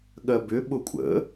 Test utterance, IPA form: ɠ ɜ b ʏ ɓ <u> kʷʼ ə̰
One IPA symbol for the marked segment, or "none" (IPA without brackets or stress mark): ʊ